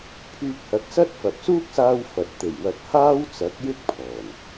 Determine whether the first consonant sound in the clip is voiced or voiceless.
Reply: voiceless